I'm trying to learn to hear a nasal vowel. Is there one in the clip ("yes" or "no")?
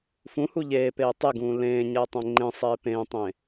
yes